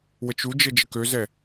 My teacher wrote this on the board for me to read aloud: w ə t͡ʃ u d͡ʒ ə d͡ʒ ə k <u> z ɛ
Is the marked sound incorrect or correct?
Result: incorrect